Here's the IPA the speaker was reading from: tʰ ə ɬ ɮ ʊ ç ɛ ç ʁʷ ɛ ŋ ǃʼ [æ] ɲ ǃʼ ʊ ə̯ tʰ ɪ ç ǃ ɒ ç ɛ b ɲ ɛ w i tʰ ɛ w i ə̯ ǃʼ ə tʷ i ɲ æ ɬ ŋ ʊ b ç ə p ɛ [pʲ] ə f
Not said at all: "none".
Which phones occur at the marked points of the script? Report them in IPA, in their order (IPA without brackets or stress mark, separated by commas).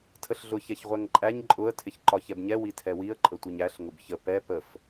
æ, p